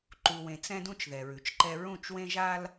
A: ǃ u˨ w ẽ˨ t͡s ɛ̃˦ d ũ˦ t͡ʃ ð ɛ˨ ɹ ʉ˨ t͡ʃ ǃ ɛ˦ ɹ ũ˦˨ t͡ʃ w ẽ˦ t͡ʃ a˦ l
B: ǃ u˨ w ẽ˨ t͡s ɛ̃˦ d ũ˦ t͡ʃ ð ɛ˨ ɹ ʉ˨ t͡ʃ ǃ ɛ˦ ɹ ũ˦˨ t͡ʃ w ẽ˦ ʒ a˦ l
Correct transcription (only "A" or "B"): B